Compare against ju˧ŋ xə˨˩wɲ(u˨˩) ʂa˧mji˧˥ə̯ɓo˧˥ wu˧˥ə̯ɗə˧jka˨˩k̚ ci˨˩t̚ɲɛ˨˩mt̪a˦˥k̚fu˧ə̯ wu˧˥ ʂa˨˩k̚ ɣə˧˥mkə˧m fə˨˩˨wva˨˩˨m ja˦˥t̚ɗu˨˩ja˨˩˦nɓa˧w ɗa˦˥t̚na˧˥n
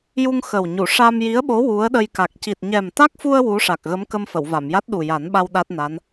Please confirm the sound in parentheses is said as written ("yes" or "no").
no